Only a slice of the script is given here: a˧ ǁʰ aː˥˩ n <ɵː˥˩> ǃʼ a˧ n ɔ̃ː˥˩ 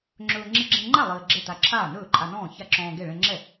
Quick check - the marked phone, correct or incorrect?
correct